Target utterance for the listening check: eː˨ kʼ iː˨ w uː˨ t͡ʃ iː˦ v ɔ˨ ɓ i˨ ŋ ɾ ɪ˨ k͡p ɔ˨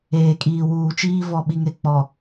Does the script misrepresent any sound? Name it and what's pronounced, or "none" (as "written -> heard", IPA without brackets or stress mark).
none